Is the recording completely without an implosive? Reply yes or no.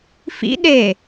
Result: no